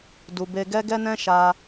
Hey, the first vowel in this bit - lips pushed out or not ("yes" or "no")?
yes